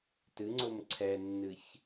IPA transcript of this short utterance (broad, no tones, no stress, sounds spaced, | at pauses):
t ɨ ŋ͡ǀ o m ǀʰ ɛ nː ɨ ç